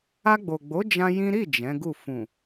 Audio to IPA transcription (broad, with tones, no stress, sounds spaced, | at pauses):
a˧ ɡ͡b o˨ ɡ͡b o˨˦ d͡ʒ ã˦ j ĩ˦ ɾ i˦˨ d͡ʒ ɛ̃˨˦ ɡ u˦˨ f ũ˨